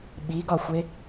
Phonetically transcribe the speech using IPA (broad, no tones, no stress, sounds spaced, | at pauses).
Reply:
ɓ i ɡ ɒ xʷ e